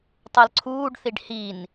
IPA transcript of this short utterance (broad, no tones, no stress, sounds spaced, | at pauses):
tˤ ʌ l ǀʰ uː ɖ θ i ɖ h i n